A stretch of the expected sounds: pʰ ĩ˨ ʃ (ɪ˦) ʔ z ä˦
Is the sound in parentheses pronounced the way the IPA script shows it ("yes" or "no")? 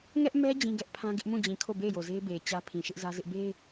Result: yes